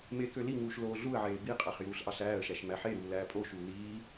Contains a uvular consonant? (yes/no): yes